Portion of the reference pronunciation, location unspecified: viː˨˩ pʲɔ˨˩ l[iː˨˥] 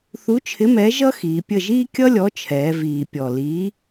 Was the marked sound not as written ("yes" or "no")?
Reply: no